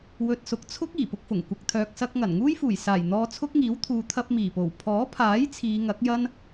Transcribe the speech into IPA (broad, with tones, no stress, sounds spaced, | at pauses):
w ɵ˨ t̚ s ʊ˨ k̚ t͡sʰ ʊ˥ k̚ iː˨˩ p ʊ˧ k̚ f ʊ˨˩ ŋ kʷ ɐ˨ k̚ t̪ʰ œː˨ k̚ s ɐ˧ k̚ ŋ ɐ˨˩ n ŋ uː˥ j f uː˨˩ j s aː˨˩ j n̪ ɔː˧ t͡sʰ ʊ˥ k̚ ŋ iː˨˥ w t̪ʰ uː˨ t̪ʰ ɐ˧ p̚ m iː˨˩ p o˨˩ w pʰ ɔː˨˥ pʰ aː˨˥ j t͡sʰ iː˨˧ ŋ ɐ˨˥ k̚ j ɐ˥ n